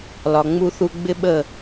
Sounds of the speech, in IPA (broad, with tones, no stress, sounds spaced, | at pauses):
l ɒ˨ ŋ͡m u˧ θ u˧ ɡ͡b ɪ˦ ɓ ə˦˨